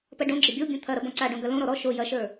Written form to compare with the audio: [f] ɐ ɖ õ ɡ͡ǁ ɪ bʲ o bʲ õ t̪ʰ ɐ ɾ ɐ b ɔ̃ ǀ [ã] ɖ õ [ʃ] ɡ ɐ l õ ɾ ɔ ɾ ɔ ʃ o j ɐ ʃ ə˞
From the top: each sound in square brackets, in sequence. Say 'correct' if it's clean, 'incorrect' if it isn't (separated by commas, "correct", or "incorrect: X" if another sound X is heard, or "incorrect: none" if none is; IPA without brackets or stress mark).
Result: incorrect: p, incorrect: a, incorrect: none